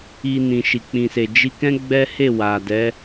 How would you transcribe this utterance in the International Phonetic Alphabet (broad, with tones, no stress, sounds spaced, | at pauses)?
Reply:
i˧ n ĩ˨ ʃ i˨ k͡p ĩ˨ s e˨ d͡ʒ i˧ k ɛ̃˦ ɡ͡b ɛ˦ h e˦˨ w a˨ d ɛ˨˦